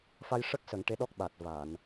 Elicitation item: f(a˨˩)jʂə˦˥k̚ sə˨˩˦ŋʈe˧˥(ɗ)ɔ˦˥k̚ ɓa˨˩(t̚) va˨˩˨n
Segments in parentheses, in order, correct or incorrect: incorrect: a˧, correct, correct

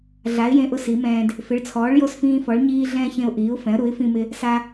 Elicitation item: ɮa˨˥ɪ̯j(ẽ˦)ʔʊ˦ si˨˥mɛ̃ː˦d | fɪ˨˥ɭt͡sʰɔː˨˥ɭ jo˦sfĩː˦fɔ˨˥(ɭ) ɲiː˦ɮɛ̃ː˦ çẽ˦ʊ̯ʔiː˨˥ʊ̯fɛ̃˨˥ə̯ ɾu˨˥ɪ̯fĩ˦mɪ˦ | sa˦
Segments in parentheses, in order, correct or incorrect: correct, correct

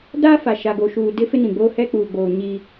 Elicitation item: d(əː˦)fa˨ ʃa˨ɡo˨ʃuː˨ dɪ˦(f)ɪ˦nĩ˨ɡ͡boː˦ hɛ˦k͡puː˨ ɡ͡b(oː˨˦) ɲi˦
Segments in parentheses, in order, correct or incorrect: incorrect: aː˦, correct, incorrect: oː˨

